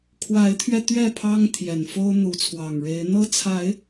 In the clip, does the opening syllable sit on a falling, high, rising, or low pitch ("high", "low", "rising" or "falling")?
rising